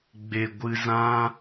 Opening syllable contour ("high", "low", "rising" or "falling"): low